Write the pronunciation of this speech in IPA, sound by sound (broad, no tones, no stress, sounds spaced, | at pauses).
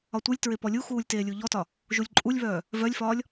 ɒ tʷ ɯ lʲ t ɹ e p ɔ lʲ u x uː lʲ t eː lʲ u ʎ ɔ t ɒ | ʒ u lʲ ǃʼ u lʲ β œː | v œ lʲ f ɒː lʲ